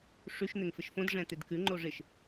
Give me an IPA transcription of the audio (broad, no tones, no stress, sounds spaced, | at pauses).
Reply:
ʂ ʉ ʃ n̪ ɪ ŋ f ɪ ʃ f õ d ʐ ɛ̃ t̪ ɪ d k ʉ ŋ͡ǃ o ʐ ɪ ʃ